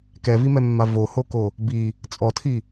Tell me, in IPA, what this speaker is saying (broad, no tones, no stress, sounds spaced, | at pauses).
k ɛ v i m ɛ mː a v o h o k o | b i | t͡sʼ ɔ tʰ i